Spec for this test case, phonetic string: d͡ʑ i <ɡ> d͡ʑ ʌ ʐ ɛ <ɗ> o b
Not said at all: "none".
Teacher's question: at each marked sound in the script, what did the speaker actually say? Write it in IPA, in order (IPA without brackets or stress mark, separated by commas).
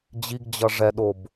ɡ, ɗ